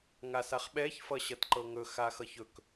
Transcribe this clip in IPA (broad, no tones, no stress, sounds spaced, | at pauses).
ŋ a s a χ ɓ ɛ ç f ʌ ɕ ʌ t ǃ ɤ ŋ ɵ x a x ʌ ç ɵ k